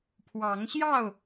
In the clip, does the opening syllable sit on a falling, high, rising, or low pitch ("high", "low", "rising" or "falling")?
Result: rising